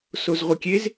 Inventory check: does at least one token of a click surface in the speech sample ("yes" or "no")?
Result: no